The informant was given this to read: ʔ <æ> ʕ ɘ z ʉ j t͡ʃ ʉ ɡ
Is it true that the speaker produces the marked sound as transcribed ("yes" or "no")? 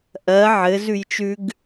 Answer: no